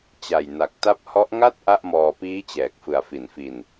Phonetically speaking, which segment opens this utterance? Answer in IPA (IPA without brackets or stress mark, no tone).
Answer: t͡ɕ